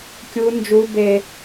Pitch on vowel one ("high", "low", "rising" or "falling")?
high